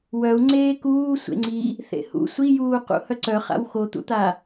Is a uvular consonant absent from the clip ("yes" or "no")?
no